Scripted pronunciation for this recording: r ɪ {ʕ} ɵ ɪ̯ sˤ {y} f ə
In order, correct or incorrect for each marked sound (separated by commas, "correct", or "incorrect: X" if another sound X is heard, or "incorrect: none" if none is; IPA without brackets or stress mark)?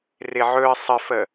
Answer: correct, incorrect: ɪ